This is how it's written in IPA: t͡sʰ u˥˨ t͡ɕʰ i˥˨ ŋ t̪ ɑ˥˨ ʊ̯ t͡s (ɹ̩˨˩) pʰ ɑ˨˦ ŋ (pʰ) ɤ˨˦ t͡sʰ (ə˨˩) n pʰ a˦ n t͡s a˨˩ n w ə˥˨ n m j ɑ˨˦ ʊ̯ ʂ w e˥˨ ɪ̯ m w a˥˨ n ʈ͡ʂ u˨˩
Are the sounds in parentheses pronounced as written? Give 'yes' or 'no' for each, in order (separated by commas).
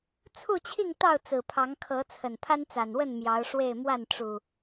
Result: yes, no, yes